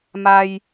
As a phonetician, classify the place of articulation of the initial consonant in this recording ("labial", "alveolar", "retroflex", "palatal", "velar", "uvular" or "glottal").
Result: labial